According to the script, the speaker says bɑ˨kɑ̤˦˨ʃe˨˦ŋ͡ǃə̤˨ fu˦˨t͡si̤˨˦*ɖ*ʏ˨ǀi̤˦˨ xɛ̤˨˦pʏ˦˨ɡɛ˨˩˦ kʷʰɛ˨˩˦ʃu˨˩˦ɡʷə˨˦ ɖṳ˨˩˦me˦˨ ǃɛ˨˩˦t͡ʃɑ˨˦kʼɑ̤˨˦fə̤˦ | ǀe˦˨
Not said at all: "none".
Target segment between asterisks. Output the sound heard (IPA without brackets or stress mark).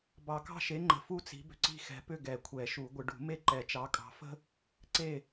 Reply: b